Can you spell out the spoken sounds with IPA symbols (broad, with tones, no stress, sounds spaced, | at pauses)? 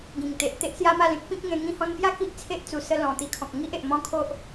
ɡ ĩ˨˩ ŋ t̪ e˨ ʔ t̪ e˦ ʔ s j a˦ m a˥˧ l ẽ˦ k̚ p ĩ˦ k̚ ŋ ẽ˧ ŋ ĩ˧ h ɔ̃˧ n p j a˦ k i˦ ʔ t͡sʰ e˦ ʔ t͡s u˨˩ s ə˧ l ɔ̃˨˩ t̪ i˧ kʰ ɔ̃˨ k̚ ŋ i˦ ʔ e˨ ʔ m ɔ̃˦ kʰ o˦ ʔ